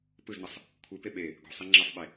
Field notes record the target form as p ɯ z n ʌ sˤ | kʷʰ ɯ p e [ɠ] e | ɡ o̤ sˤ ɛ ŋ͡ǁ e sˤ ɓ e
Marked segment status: incorrect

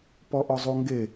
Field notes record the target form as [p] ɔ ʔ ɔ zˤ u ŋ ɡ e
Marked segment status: correct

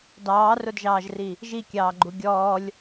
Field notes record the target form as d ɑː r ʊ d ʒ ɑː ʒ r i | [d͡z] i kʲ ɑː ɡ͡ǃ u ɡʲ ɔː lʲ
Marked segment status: incorrect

